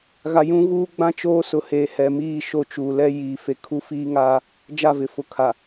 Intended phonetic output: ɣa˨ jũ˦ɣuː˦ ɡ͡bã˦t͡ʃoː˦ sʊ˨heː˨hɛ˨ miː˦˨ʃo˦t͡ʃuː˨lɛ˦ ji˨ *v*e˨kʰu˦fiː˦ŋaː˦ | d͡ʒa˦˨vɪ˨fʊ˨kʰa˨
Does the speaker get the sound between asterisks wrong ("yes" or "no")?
yes